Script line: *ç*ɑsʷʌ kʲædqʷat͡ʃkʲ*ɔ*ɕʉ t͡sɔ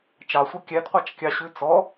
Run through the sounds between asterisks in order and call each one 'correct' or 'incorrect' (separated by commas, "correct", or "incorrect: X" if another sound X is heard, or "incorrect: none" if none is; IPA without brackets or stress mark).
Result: incorrect: t͡ʃ, incorrect: ɑ